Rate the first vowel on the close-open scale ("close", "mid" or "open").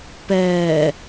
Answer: mid